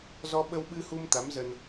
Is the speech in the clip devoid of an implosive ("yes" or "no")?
no